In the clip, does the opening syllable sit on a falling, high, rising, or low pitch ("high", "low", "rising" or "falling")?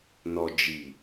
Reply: low